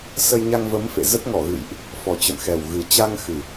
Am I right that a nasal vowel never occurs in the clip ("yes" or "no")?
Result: yes